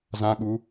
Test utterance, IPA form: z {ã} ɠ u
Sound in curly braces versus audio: correct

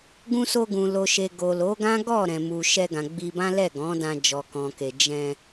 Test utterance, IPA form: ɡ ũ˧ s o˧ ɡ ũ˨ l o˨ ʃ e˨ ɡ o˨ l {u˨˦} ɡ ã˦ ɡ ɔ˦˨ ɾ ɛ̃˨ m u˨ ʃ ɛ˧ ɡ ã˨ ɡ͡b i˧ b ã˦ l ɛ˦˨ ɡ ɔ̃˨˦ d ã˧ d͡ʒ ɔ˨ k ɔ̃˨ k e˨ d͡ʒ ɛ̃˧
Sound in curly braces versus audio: incorrect: o˨˦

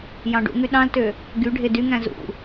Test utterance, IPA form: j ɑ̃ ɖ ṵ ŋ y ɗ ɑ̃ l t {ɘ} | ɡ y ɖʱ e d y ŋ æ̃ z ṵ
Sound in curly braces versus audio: incorrect: ø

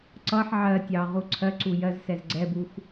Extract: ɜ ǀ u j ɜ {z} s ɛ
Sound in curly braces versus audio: correct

